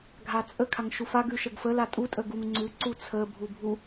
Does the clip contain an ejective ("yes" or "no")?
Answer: yes